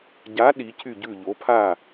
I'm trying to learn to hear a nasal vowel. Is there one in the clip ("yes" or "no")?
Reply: no